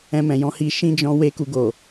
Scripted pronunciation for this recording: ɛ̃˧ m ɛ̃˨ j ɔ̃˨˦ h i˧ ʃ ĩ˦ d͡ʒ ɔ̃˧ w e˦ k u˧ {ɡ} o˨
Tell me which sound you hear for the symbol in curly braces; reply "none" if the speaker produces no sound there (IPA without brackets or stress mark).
ɡ